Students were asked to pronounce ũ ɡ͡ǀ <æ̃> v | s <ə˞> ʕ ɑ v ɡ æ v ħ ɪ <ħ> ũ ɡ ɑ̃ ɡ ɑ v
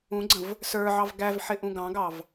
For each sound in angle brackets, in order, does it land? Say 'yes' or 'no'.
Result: no, yes, no

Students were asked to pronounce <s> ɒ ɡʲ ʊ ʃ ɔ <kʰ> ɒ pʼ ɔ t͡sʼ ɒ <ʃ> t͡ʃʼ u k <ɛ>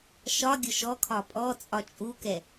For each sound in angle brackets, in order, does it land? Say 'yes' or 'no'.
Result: no, yes, no, yes

